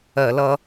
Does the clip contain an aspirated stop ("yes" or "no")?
no